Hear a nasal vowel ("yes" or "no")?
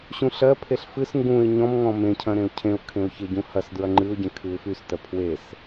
yes